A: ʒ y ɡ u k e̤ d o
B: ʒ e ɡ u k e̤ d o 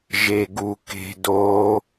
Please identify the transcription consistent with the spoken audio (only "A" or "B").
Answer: B